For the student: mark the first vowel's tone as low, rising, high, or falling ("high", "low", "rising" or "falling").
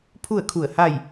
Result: falling